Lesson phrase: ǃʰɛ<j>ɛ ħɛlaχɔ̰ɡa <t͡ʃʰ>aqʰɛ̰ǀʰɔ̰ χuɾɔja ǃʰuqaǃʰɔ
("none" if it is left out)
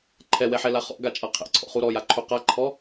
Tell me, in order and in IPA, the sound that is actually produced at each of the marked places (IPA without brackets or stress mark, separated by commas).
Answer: w, t͡ʃʼ